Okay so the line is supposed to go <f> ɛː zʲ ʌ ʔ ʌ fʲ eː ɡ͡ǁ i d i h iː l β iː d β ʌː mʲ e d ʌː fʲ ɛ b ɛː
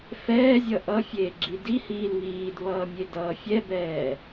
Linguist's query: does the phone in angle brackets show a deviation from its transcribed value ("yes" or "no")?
no